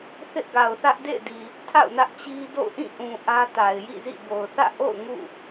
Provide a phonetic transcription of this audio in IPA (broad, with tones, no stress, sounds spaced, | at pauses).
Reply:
θ ɪ˦ ʔ ɡ a˨ ʊ̯ θ ä˦ ʔ d ḛ˦˨ ɪ̯ d i˨ | tʰ a̰˦˨ ʊ̯ n ä˦ ʔ t͡ɕ i˦ d o̰˦˨ ʊ̯ ʔ ĩ˦˨ ʔ ũ˨ ʔ ä˦ t a˨ ɪ̯ j ḭ˦˨ z ḭ˦˨ b o˨ ʊ̯ θ ä̰˦˨ ʔ o̰˦˨ ʊ̯ ŋ ṵ˦˨